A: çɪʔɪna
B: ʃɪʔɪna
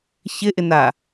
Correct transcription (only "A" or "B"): A